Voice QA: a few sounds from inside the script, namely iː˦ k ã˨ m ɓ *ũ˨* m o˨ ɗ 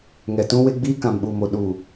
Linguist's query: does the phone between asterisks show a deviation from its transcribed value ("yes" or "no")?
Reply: yes